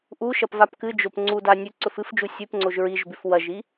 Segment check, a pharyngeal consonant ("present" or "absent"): absent